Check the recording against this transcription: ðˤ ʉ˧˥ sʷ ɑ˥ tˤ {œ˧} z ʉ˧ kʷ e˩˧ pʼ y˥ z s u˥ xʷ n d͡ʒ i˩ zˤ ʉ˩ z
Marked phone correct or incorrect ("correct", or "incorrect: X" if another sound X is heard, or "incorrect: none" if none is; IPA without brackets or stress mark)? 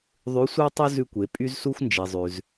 incorrect: œ˥